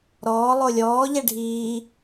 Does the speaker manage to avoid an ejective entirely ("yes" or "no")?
yes